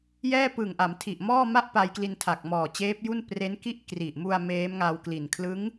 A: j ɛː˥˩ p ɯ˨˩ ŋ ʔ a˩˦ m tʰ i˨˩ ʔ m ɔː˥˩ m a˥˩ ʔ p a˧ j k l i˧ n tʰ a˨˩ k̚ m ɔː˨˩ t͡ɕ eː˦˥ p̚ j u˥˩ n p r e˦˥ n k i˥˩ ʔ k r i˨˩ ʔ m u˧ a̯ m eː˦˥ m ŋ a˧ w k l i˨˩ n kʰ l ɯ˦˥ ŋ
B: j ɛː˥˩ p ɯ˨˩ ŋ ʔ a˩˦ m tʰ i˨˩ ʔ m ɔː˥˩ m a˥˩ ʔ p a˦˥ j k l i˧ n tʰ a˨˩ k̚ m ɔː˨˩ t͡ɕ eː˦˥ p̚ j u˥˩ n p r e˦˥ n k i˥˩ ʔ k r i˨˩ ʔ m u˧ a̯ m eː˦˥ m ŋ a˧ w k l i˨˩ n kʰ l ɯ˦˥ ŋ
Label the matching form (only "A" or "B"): A